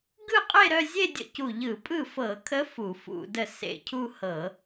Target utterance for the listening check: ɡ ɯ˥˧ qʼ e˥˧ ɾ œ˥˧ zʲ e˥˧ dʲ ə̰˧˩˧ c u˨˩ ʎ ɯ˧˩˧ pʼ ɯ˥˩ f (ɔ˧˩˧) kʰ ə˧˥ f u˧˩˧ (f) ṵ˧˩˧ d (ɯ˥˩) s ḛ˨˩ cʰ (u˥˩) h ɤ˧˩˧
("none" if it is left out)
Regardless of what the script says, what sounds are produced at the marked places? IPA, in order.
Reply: ɤ˧˩˧, f, ə˥˩, u˥˧

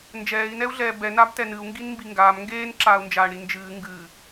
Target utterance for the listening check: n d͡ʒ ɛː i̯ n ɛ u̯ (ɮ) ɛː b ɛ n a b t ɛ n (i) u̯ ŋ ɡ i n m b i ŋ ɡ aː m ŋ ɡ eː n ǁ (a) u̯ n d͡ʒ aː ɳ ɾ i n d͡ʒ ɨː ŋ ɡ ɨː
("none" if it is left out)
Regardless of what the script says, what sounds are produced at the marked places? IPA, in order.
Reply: ɮ, ɨ, aː

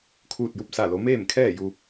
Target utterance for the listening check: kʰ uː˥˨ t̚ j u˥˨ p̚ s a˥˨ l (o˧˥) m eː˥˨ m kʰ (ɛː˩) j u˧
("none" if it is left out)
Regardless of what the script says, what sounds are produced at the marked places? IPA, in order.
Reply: o˧˥, ɛː˥˨

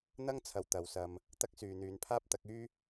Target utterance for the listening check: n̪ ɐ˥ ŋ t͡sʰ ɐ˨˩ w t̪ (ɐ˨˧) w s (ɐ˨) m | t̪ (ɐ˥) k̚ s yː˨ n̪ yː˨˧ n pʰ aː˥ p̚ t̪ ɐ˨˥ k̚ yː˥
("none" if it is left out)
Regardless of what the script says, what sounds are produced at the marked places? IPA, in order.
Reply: ɐ˨˧, ɐ˧, ɐ˥

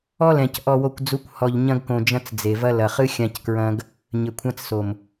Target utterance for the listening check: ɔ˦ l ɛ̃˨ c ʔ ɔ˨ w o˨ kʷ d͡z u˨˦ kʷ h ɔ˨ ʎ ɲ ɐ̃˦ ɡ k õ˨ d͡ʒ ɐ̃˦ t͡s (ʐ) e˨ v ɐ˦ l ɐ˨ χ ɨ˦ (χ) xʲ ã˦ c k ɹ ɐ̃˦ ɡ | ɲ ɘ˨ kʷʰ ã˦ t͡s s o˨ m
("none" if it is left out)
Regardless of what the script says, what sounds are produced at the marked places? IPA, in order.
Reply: d͡z, none

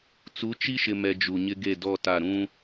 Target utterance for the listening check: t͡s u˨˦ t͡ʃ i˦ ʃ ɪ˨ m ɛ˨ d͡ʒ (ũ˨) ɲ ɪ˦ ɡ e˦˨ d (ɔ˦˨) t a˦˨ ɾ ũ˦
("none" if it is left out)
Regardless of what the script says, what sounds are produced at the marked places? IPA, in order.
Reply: u˨, ɔ˦˨

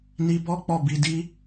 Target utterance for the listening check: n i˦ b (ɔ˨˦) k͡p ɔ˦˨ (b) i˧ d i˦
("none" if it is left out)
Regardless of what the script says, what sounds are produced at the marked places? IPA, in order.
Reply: ɔ˦, b

